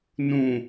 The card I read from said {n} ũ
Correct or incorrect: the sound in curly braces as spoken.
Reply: correct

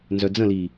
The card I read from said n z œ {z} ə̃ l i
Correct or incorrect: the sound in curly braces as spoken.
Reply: incorrect: d͡z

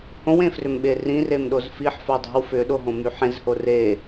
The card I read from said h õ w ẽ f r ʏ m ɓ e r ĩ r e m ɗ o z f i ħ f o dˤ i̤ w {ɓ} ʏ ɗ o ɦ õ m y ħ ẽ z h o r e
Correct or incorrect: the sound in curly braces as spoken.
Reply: incorrect: f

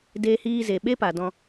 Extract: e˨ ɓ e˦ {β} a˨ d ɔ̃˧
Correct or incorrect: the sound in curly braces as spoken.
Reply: incorrect: p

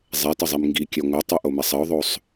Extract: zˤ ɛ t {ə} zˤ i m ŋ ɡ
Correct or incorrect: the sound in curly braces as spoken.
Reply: correct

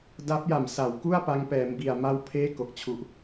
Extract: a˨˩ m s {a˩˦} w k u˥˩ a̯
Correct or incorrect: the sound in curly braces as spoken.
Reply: correct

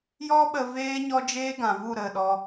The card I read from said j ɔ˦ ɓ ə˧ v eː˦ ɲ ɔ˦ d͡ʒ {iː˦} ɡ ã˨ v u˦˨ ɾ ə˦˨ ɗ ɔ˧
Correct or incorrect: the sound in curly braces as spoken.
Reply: incorrect: eː˦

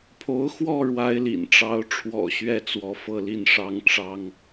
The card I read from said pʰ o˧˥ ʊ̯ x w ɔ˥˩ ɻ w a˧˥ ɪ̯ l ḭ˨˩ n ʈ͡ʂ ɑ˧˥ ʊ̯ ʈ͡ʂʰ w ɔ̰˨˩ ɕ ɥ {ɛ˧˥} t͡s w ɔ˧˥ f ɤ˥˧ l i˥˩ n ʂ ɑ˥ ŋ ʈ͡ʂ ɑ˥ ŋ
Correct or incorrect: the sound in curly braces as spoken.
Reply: incorrect: ɛ˥˩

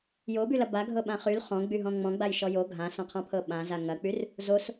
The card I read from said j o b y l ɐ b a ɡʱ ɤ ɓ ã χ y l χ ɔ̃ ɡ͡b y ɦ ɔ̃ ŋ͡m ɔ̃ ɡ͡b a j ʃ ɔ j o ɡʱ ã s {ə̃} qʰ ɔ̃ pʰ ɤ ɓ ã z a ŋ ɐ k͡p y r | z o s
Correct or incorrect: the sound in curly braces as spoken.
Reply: incorrect: ɔ̃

